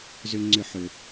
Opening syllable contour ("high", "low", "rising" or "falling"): high